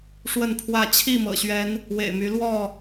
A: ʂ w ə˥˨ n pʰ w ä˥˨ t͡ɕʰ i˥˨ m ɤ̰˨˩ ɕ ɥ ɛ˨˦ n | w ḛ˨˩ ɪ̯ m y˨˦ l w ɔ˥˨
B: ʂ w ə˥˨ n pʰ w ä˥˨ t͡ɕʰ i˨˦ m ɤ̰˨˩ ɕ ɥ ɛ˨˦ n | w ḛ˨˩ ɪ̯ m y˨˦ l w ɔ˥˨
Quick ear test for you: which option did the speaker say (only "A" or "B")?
A